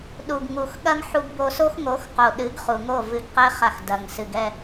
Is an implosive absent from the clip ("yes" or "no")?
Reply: no